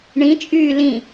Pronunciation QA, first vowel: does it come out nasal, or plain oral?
nasal